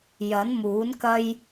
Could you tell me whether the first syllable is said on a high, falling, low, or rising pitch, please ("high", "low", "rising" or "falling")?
rising